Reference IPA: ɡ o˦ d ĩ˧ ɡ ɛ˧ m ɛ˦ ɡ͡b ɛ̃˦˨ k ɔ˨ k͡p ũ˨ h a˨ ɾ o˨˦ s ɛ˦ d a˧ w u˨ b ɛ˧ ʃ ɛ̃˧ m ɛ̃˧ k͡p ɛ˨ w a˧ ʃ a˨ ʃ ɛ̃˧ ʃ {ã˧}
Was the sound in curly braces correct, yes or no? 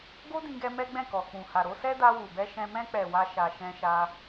no